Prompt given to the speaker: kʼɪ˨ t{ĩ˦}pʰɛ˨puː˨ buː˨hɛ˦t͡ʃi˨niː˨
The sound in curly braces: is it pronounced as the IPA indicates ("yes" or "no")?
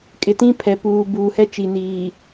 yes